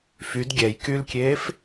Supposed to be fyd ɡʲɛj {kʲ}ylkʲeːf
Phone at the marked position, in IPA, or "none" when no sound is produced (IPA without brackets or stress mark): k